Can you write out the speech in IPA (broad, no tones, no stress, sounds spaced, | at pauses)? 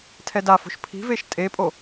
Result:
tʰ ɛ d a f o̤ ʃ pʰ i̤ v e ʃ tʼ e pʼ o